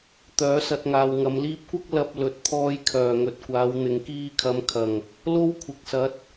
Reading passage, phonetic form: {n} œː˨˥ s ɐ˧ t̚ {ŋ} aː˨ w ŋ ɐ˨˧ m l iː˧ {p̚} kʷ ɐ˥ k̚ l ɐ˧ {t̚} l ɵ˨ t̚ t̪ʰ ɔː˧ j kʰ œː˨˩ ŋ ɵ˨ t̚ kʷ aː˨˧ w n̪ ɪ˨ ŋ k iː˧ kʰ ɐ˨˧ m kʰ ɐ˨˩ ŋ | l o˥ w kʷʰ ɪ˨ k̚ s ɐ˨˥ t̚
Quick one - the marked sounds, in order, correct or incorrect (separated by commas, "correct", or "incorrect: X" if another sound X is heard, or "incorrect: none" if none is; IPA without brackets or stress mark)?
incorrect: t̪, correct, correct, incorrect: p̚